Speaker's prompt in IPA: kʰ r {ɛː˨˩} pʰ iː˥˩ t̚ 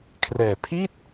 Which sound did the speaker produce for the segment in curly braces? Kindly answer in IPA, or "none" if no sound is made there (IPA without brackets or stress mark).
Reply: ɛː˨˩